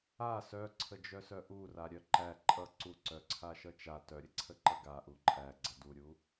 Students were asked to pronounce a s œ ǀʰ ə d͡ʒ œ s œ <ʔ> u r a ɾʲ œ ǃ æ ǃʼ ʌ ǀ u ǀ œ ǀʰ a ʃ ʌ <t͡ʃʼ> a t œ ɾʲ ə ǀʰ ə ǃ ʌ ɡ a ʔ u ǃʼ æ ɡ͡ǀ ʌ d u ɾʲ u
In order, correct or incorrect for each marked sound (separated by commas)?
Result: correct, incorrect